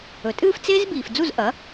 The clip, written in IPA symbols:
ɵ˩tʼɨː˥˩f t͡seː˥zbiː˩f d͡zu˥˩zʔɐ˩˥

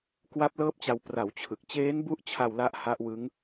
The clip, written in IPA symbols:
kwa˦˥p̚lɤː˦˥p̚t͡ɕa˧w pra˩˦w t͡ɕʰɯ˨˩k̚ t͡ɕeː˦˥nbu˦˥ʔt͡ɕʰa˧w la˦˥ʔha˦˥ʔwɯ˦˥ŋ

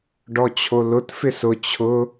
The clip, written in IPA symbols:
ɖɔt͡ɕʰolʊt fɪsʊ t͡ɕʰʊ

